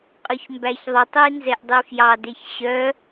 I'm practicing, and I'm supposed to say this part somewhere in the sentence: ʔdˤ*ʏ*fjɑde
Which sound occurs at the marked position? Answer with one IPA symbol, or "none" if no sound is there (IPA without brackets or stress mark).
y